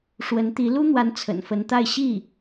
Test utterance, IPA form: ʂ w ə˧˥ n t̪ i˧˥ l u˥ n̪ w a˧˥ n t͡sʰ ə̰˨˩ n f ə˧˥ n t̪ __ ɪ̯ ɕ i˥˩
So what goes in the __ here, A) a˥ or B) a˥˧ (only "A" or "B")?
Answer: B